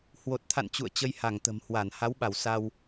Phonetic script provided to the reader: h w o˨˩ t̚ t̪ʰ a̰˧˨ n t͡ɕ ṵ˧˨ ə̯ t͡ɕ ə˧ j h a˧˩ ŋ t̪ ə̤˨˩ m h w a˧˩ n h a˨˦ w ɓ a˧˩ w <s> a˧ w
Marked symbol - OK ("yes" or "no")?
yes